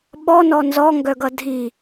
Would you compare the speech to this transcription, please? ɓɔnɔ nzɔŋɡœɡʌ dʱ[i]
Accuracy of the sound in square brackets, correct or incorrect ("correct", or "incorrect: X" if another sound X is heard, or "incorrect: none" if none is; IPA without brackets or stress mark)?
correct